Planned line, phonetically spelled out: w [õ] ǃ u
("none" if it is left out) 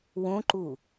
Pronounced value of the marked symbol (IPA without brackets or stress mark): õ